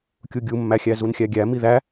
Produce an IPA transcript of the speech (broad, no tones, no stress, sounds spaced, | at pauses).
kʲ u ɡʲ u mː æ xʲ æ z u n xʲ æ ɡʲ æ m i ð æ